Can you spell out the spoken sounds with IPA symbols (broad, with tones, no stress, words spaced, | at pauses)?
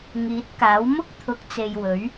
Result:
ŋiː˨˥t̚kaː˨˥w mʊ˥k̚t̪ʰʊ˨˥k̚t͡se˨j wɵ˨˥ɥ